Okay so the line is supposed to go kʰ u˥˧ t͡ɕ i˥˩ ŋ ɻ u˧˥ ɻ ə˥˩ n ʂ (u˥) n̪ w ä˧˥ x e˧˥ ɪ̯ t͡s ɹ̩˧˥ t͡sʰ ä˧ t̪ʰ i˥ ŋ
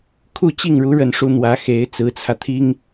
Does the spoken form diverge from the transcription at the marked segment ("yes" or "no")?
no